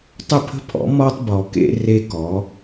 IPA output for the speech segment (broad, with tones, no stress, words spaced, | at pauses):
tˤə˦˨pʰə̤˦pʰɔ̰˨˦ mɔ˦tˤbɔ˨kḛ˦ re˦ kɔ˨˦